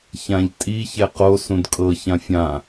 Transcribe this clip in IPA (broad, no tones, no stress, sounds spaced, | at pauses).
ç ã ʎ tʼ i ç ɛ q o s ũ d kʼ ɤ ç ã fʲ ã